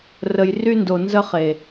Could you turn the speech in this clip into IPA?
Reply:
rə˨jry˦ndo˨ nzə˦χe˨

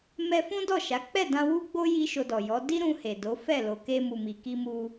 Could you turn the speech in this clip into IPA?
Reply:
mɛ˧ fũ˦dɔ˦˨ʃa˨˦ k͡pɛ˦˨dã˧wu˦ɡ͡bo˦ ji˦ʃo˧dɔ˨jɔ˨˦ di˦ɾũ˧he˨ do˨˦fɛ˦˨ lo˨ke˧ mu˨mi˨ki˧mu˧

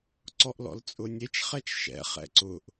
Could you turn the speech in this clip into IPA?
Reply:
ǀɔʔlɔ̰lt͡sʼʊnʲet͡ʃ χɛt͡ʃʃɛ̰ χɛ̰ǀʊʔ

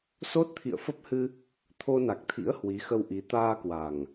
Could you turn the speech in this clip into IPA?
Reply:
so˦˥t̚t̪ʰḭ˧˨ə̯fə˦˥p̚hɨ˧ | t̪ʰo˧na˨˩k̚t̪ʰḭ˧˥ə̯ hwi˨˦xə˧wʔi˨˦ t̪aː˧kwa˨˩ŋ

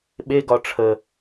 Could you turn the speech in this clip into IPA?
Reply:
ɓeɡɒ ʈ͡ʂʰə

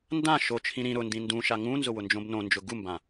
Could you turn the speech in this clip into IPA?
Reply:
ndã ʃot͡ʃʰĩ ɾĩ ɾʊ ndĩndũʃa ŋũnzʊ wʊnd͡ʒõbnõnd͡ʒʊ ɡumbã

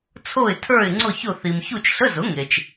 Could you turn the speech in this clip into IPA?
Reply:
t͡sʰo˦˨ɪ̯tʰə˞˦˨ɪ̯ ŋ͡ǀʊ˦˨çʊ˦˨ θi˨m çu˦˨t͡ʃɬə˧˥˧zʊ˩˥ ŋe˨t͡ʃ

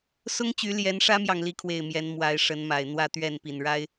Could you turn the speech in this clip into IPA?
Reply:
sʊ˦ŋ t͡ɕy˨˦ljɛ˨˦nʂä˦mjɑ˨ŋ li˦kʰwe˥˨ɪ̯mjɛ˨˦n mwa˨˦ɪ̯ʂə˨˦nma˨˩ɪ̯ n̪wä˥˨t̪ɥɛ˥˨npi˨˩n ɻa˦ɪ̯

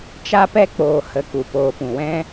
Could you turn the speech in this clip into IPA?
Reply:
t͡ʃa˧pɛ˧k͡poː˨hə˨ ku˨poː˨pũ˨wɛ̃˦

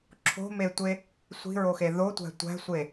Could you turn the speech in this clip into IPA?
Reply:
ǁʰo̤metʷe | sʷi̤ɹoxe ðotʷæ̤ tʷæ̤sʷe

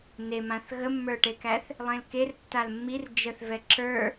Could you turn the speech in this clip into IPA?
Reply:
nemãθ ɣəmːə˞ʈekæθ | lˠẽlker tːalmːir d͡ʒəθvɛ ǁə˞

